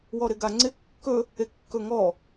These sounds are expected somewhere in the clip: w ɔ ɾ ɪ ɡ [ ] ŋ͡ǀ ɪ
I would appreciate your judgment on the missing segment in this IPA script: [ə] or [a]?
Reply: a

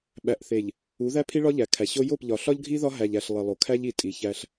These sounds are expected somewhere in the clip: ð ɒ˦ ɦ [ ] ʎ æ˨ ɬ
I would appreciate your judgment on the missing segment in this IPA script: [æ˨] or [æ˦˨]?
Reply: æ˨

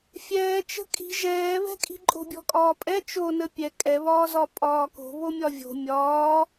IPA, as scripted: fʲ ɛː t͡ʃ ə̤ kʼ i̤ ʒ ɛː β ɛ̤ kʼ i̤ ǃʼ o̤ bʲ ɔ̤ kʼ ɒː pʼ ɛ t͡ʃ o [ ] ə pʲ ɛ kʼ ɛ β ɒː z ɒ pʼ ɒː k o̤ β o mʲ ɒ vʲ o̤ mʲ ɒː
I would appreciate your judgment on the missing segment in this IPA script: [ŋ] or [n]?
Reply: n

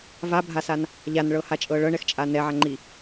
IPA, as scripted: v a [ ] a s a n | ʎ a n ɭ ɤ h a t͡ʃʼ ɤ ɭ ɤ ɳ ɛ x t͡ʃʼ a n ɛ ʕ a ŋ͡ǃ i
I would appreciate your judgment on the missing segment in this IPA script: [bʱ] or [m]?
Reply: bʱ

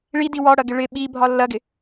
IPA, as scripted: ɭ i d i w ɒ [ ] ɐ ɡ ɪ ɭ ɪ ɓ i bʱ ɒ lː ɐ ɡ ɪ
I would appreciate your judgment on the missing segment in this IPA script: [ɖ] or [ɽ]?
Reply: ɽ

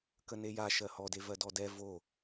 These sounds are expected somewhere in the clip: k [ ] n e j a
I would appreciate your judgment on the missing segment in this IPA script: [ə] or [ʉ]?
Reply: ə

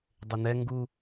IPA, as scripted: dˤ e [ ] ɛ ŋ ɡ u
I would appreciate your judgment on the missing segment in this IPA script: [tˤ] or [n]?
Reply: n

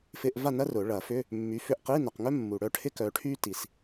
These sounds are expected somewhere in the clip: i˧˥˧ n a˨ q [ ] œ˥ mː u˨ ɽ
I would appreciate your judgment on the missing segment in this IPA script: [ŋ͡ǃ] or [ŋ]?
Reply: ŋ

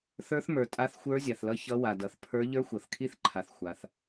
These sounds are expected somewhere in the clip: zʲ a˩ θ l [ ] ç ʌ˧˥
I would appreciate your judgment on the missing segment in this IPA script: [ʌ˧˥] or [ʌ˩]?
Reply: ʌ˧˥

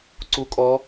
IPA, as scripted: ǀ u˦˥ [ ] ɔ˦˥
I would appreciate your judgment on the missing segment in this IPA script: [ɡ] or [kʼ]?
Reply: kʼ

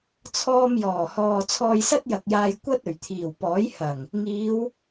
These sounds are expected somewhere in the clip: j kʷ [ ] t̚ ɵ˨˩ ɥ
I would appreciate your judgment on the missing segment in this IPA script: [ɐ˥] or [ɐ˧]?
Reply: ɐ˥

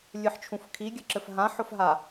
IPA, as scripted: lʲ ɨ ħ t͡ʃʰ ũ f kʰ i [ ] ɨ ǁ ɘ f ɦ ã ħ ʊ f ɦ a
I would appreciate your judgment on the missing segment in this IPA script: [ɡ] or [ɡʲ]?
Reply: ɡʲ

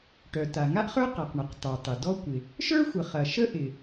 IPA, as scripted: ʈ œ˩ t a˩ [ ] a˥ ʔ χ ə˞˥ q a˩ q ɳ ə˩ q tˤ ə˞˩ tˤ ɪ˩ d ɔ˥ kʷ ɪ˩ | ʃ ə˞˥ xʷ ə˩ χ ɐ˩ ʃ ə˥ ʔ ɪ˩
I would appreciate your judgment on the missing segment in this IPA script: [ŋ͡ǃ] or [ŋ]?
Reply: ŋ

